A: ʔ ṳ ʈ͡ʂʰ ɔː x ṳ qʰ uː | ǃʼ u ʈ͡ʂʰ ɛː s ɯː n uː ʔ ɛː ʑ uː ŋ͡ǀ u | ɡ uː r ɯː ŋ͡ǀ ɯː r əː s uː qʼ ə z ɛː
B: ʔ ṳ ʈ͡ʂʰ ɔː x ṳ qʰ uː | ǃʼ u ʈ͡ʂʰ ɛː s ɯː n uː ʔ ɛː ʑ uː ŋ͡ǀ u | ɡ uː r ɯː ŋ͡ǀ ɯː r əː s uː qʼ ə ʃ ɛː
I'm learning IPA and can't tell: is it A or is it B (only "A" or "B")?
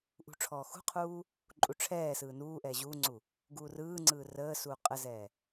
A